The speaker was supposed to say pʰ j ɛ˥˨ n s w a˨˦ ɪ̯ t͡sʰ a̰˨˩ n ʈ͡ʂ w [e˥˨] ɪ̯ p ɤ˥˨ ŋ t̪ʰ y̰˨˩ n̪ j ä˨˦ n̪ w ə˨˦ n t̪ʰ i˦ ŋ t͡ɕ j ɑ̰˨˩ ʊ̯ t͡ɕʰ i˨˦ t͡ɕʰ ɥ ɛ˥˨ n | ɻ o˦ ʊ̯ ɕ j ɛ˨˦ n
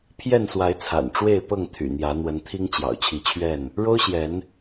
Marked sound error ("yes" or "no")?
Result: no